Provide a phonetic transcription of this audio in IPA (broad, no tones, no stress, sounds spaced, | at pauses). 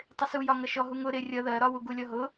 tˤ ɪ s u j ɒ ŋ ʌ ʃ ɔ ɦ u ŋ ʊ ɾ ɪ rʲ ʌ ð ɜ ɾ ɒ w u ɡ u lʲ ɔ ɦ ʊ